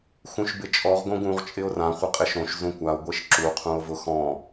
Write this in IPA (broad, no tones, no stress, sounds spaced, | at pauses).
x ũ ʃ b ɪ t͡ʃʼ ɔ ʁ ɡ õ ɡ ũ ʁ t͡ʃʼ ɪ o̯ r ã χʷ ɘ qʼ ɪ ʃ õ ʃ z ũ kʷ a o̯ ɡʷ e ʃ ǁ u qʰ ũ o̯ v ʊ x ɔ̃